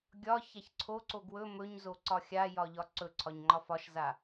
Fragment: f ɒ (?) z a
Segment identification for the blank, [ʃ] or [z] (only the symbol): ʃ